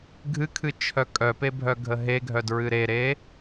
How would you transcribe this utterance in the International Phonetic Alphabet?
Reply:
ɡʱ ɨ kʰ ɨ t͡ʃʰ œ kʼ œ p e bʱ œ ɡʱ ə ɦ e ɡʱ œ d ɹ ɨ ɾ e ɾ e

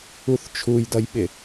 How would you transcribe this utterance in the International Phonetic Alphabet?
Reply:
u θ t͡ʃʰ u j d ʌ j ɓ ɪ

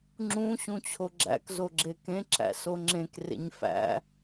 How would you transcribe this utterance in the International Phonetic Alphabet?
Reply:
ŋ͡ǁ ũ ɕ ũ t͡ɕʰ o ɡ͡ǁ æ̰ k z o ɡ͡ǁ e k ẽ ǁ æ̰ s o ŋ͡ǁ ẽ k r ḛ ɲ f æ̰

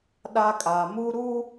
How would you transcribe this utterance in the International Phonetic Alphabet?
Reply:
ɗ a˦ kʼ a˨ m u˦ ɾ u˦

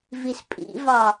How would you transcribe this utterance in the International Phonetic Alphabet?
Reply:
v i s pʼ ḭ v ɑ

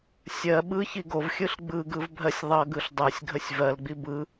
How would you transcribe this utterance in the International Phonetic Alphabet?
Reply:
sʲ ɜ ɓ ɯ ç i ɡ o v xʲ ɯ ɬ ɡ͡b ɯ ɡ ɯ v bʱ ɜ sʲ ðˤ ʌ ɡ ɯ ɬ dˤ ɜ sʲ ɡʱ ə sʲ v ɜ l ɡ͡b i b ɯ

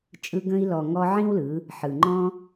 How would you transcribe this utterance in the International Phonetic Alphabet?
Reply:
t͡ʃʼ ɯ˧ ɡ ə̃˧ i̯ l ɔ˨ ŋ ɔ˧ ʕ ĩ˦ w l ɯ˨˦ | ħ ɯ˨ ŋ͡ǃ ɔ̃˦

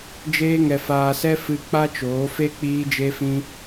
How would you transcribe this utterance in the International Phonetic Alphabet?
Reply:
d͡ʒ eː˦ ŋ ɛ˧ f aː˧ s ɛ˦ f ɨ˧ k͡p a˦ t͡ʃ oː˨˦ f e˦ k͡p iː˦ d͡ʒ e˦ f ĩ˦

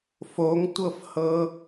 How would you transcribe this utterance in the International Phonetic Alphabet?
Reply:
f o ŋ tʷ ɤ f h ɤ

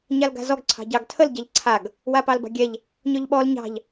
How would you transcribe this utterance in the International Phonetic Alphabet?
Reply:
ɲ a l ɡ a̤ z ɔ ɡ ǀʰ ɑ̤ ɟ ɑ ɡ tʰ ə l ɟ a ʎ ǀʰ a ɡ | w a p ɑ l b ɑ̤ ɡʲ ɛ ʎ | ɲ ɔ ʎ ɓ ɔ l ɲ ɑ̤ ʎ

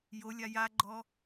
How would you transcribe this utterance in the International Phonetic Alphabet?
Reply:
j o lʲ a j a ɡ͡ǃ ɔ

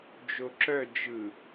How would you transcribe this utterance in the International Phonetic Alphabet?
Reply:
d͡ʒ o ǁ œ d͡ʒ ɯ

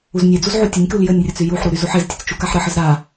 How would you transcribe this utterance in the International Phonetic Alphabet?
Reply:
u z nʲ e d͡z u z ʕ u tʲ ə nʲ k u l j ə nʲ rʲ ə t͡s y j u ħ ɾ u ɾ y z u ħ e z tʲ ə t͡s t͡ʃ u k a ħ ɾ ə ħ ə z ɾ a

